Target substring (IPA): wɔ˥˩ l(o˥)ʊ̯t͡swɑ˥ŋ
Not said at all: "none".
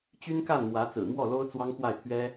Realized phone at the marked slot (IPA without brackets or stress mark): o˥